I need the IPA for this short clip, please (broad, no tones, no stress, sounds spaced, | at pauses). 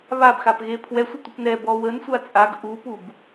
β a b x a p ɣ e pʰ w ɛ sʷ ə tʷ ə p n ɛ b ɔ w ə n sʷ a t͡sʼ a ɡ ʔ u p u b